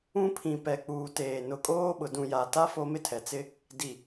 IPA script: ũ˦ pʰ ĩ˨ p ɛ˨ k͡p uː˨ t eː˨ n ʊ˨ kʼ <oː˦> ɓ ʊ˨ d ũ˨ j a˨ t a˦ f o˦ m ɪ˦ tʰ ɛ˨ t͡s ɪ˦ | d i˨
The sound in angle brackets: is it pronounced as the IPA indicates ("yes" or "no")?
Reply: yes